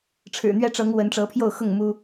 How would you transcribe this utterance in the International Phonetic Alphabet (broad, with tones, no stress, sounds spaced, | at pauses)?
ʈ͡ʂʰ ɻ̩˨˩ n̪ ɥ ɛ˦ ʈ͡ʂ ɤ˨˦ ŋ w ə˨˦ n ʈ͡ʂ ɤ˨˦ pʰ j o˥˨ ʊ̯ x ʊ˥˨ ŋ m u˦